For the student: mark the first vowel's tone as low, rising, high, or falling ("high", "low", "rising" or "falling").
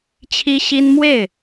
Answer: high